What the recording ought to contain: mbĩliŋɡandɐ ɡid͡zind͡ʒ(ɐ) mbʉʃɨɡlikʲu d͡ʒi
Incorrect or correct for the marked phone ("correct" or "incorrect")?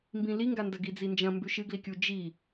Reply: incorrect